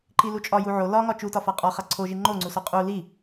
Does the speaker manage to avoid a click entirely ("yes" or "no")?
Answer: no